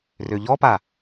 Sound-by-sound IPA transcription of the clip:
r ø ʎ ɔ p a

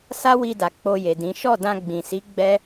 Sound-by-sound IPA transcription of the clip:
s a˦ w i˧ d a˨ k͡p o˧ j e˨ d ĩ˨˦ ʃ ɔ˦˨ d ã˧ ɡ͡b ĩ˨ s i˨˦ ɡ͡b ɛ˦

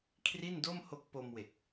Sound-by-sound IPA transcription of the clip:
kʰ r i˥˩ n d o˥˩ m h o˦˥ k̚ p o˧ m w e˨˩ k̚

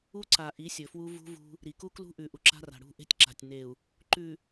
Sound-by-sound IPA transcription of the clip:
u˦ ǀ a˨ ʔ i˨˦ sʲ ɵ˨ f w u˦ v ṳ˦ v ṳ˦ | ɾ i˨ k u˦ k l ṳ˦ ʔ ʉ˨ ʔ u˨ ǁ a̤˦ r a̤˨ ɽ ṳ˦˨ ʔ e̤˦ tʲ ǁ a̤˨ tʲ n e˨ u̯ | ǃ ʉ˨

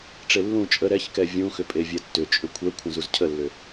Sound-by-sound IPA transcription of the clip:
ʈ͡ʂ e lː ũ t͡ʃʼ ə ɾ ɛ ç k ɛ vʲ ũ x ʏ pʼ e vʲ ɛ tː ʏ t͡ʃʼ ʏ kʷʰ ɛ kʷʰ ə̃ z u z cʰ ə lː ʏ

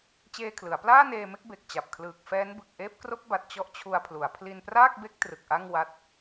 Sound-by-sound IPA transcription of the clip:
t͡ɕ eː˧ kʰ l ɯ˩˦ a̯ p l aː˥˩ n eː˧ m e˥˩ k̚ b e˨˩ k̚ t͡ɕ a˨˩ p̚ kʰ l ɯː˨˩ k̚ f ɛː˦˥ n b ɯ˨˩ k̚ ʔ eː˦˥ p̚ k r o˦˥ k̚ b a˨˩ t̚ t͡ɕ ɔ˥˩ ʔ t͡ɕʰ u˧ a̯ pʰ l u˩˦ a̯ pʰ l i˧ n p r aː˥˩ k̚ b e˦˥ k̚ t r ɯ˨˩ k̚ ʔ a˥˩ ŋ w a˦˥ t̚

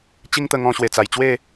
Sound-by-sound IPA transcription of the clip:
t͡ɕ i˦ ŋ t̪ ə˧ ŋ ɔ̃˧ ɕ w e˨˩ t͡s a˨˩ j t͡ɕ w e˥˧

